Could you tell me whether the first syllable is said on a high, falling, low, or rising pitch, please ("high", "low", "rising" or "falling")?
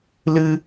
high